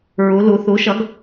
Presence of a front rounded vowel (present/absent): absent